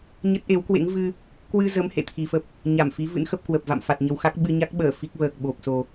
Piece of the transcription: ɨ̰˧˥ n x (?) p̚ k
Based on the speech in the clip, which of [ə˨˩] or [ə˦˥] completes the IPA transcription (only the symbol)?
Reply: ə˦˥